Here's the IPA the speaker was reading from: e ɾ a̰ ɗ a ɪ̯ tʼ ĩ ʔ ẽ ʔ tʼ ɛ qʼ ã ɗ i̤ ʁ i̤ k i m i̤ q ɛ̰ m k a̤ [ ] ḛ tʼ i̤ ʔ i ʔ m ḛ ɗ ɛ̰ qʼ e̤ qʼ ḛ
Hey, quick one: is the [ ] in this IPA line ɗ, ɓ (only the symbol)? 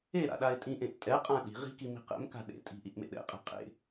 ɗ